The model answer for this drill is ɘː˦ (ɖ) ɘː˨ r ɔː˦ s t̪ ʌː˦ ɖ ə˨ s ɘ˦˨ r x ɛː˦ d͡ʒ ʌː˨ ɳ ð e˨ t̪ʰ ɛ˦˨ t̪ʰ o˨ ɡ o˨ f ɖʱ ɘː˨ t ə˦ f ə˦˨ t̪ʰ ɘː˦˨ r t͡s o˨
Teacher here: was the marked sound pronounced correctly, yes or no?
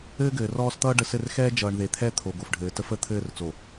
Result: no